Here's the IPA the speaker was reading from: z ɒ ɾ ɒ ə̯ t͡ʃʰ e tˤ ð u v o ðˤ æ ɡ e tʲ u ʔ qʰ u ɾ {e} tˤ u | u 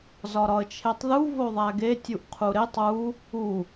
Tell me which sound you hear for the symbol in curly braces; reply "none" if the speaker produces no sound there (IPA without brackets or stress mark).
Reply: e